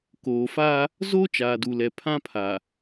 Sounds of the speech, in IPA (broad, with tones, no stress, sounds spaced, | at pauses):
k oː˨ f a˦ | z o˦ t͡ʃ aː˨ d u˨ l ɛ˨ pʰ ã˦ pʰ a˨